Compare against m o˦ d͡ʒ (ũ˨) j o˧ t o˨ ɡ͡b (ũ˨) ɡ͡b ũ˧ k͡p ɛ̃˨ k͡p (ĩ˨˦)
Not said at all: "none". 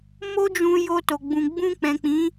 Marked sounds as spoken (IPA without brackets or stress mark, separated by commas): ũ˧, ũ˨, ĩ˨˦